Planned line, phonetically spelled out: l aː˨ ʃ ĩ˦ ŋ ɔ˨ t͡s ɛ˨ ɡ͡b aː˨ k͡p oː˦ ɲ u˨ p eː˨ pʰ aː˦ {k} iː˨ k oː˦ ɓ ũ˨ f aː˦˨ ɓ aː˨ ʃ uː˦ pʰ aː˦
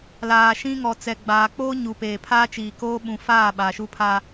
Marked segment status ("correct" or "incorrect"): incorrect